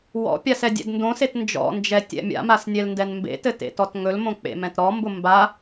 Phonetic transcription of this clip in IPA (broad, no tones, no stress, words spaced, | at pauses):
wɔ̰pʲas ɛdʲɛ̰dndõset nd͡ʒɔ̰nd͡ʒɛ tʲɛ̰mʲa̰mas nʲɛlndɛnmbḛtɘ tḛtɔtŋɵlmõ k͡pḛmɛ̃tɾɔmbʊ mba